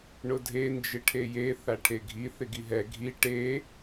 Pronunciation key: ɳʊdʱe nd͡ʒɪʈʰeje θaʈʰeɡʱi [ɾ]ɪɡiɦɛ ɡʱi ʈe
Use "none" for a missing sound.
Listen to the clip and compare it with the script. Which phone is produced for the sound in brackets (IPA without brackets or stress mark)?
θ